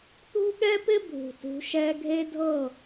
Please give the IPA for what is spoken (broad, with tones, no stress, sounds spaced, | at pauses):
t̪ ṳ˦ ɠ ɛ˦ p ɪ˦ bʱ ṳ˨ t ṳ˨˦ ʃ ɛ˦ ɡʱ e˦ dʱ ɤ˦˨